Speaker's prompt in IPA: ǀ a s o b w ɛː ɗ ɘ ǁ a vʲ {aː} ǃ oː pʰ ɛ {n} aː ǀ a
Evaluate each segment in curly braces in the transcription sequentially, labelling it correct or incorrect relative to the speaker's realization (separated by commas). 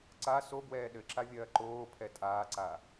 incorrect, incorrect